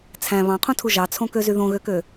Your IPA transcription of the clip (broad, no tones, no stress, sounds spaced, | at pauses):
t͡sʰ æ̃ β ɑ̃ qʰ ũ tʰ u ʒ ɑ t͡sʰ õ k ø z y ð õ ɣ ø k ø